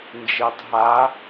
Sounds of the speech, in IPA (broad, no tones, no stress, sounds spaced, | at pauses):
n d͡ʒ i tˤ ɦ a